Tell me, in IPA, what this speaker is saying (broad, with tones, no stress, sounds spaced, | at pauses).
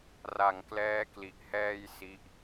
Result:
r a˨˩ ŋ k l ɛː˦˥ k l i˨˩ ʔ h ɛː˧ j s i˦˥ ʔ